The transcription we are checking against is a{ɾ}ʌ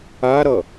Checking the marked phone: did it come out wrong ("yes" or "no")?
no